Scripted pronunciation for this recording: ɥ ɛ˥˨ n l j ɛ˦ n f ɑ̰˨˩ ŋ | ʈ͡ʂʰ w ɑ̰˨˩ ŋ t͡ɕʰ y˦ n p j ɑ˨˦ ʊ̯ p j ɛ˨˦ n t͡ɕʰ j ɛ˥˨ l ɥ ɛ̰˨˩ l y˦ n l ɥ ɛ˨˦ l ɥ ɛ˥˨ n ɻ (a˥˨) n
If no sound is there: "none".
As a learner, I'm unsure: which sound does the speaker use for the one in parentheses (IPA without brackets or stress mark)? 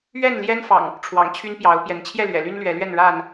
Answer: a˥˨